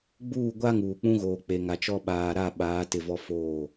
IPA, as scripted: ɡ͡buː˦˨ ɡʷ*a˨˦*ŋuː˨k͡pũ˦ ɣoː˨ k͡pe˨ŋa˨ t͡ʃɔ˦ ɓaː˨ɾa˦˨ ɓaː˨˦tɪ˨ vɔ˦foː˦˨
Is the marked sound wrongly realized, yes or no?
yes